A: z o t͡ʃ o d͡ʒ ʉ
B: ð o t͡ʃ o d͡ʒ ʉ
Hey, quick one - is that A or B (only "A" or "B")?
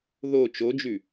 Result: B